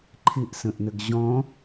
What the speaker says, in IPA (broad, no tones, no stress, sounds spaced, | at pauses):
ǃʰ ɪ ʔ s ə̃ ʔ n ə ɡ ʑ ɔ̃